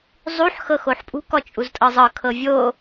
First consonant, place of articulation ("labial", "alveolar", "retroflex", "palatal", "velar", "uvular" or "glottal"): alveolar